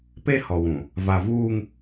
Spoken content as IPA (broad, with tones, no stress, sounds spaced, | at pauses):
p e˦ h ɔ˨ w ũ˨ | v a˨ v uː˦ ŋ